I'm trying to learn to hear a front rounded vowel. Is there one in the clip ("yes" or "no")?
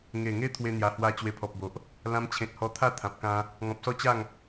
no